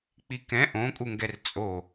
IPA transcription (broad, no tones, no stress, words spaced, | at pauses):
k͡pikɛ̃ ʔõkʼuŋɡɛr t͡sʼo